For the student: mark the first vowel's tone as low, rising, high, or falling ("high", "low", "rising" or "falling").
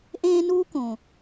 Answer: high